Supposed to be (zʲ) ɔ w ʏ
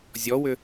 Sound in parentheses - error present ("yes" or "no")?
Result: no